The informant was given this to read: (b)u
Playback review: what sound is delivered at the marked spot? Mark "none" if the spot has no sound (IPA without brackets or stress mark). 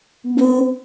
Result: b